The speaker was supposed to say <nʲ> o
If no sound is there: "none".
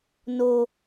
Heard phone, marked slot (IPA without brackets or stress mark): n